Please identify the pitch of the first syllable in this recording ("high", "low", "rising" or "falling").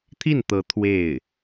falling